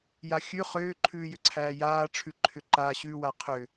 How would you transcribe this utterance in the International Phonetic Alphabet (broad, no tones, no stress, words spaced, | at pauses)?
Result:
jaxʲʉ χʏː ǃʰʉːjʏǀʰæːjaː ʈ͡ʂʰʉǃʰʏǃa ɕʉwa qʰʏ